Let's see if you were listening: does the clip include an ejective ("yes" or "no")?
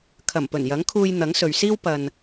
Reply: no